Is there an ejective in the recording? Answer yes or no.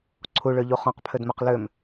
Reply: no